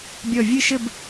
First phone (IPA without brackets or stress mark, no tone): bʲ